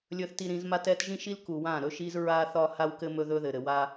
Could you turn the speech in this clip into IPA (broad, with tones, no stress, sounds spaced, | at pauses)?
lʲ ɵ˨ θ t i˨ ɾ ĩ˨ z m a˦ t ɛ˦ t ʒ ĩ˦ ʃ i˦ l k u˨ w ã˦˨ ɾ ɵ˦ ʃ i˦ z ɹ a˦ θ ɒ˦ h a˦ w k ɘ˦ m ɵ˦ ð ɵ˦ ð ɘ˨ ɾ ɘ˨ w a˦